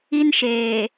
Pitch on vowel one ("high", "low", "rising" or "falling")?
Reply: high